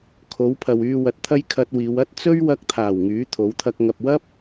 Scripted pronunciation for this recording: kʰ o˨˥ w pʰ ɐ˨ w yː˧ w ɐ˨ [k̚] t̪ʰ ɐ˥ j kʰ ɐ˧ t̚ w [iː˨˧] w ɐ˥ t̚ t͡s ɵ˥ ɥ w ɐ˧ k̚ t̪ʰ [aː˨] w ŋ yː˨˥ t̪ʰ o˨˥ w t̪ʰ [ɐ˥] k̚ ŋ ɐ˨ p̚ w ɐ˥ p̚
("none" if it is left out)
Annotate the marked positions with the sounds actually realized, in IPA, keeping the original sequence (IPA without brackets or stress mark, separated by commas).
t̚, iː˨˧, aː˨˩, ɐ˧